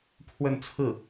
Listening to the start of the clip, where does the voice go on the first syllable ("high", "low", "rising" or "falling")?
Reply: falling